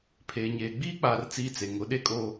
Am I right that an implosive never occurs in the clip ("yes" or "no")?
no